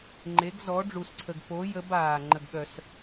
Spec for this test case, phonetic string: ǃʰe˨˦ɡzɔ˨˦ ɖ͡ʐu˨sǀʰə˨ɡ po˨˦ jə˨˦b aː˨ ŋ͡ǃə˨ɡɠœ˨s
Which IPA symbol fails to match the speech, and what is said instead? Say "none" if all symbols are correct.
ǃʰ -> ŋ͡ǃ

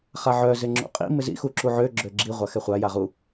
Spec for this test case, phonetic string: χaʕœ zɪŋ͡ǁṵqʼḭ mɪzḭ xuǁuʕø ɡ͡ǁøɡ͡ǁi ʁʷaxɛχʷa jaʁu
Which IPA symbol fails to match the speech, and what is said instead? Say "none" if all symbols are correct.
none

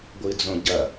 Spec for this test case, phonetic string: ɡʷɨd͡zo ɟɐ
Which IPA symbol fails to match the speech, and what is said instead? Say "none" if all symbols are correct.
o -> õ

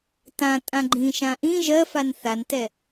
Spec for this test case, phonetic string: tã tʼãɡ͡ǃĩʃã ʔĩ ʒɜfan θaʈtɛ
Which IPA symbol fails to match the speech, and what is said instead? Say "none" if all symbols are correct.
ʈ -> n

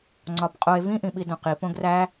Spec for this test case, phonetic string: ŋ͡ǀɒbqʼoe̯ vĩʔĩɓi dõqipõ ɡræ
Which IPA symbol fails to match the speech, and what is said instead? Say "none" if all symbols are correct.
none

